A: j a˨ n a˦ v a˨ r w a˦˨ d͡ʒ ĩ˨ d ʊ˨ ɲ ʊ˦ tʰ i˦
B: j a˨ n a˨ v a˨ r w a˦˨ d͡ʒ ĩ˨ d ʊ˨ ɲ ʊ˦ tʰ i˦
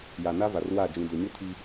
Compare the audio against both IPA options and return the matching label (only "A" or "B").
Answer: A